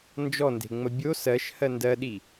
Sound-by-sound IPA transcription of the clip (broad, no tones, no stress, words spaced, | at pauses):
nd͡ʒɔnde̤ŋ͡mə bʲo sɜʃhɜ ndɜɗi